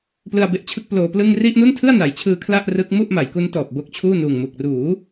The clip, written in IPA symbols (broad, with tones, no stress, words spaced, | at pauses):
plɯ˧a̯be˦˥ʔt͡ɕʰɯ˦˥k̚ ploː˧plɯ˥˩ŋ ri˥˩ʔnu˥˩ntʰɯ˥˩a̯ na˩˦jt͡ɕʰɯː˧ kʰla˥˩ʔrɯ˦˥k̚mu˥˩ʔ ma˩˦jku˦˥ntɔː˨˩p̚ bo˦˥k̚t͡ɕʰuː˥˩ nuː˨˩ŋmu˨˩k̚ruː˩˦